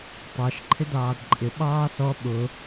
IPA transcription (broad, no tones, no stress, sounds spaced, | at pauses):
tˤ ɑ ʃ ǃʰ ɪ d ɑː d ǃʼ ɪ ɓ ɑː s ɔ ɓ ʊ